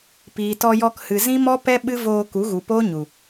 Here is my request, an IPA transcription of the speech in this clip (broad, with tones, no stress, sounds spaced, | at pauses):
p iː˨ t ɔ˧ j ɔ˧ k h ɨ˨ z ĩ˦ m ɔ˦ p ɛ˦ ɓ ɨ˦ v oː˧ k u˨˦ ɣ u˨ p oː˦ ɲ u˨